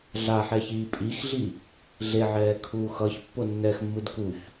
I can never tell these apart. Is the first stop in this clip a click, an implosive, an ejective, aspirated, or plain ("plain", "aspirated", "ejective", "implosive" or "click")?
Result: ejective